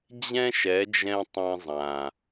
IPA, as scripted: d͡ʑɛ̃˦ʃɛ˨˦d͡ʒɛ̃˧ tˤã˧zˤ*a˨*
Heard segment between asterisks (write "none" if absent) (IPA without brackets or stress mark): ã˨